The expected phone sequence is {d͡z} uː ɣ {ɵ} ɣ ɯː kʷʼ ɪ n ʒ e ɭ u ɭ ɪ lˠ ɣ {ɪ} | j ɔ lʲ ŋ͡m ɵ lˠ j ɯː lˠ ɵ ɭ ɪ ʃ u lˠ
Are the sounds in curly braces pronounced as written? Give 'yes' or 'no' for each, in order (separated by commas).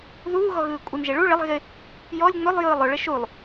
no, no, yes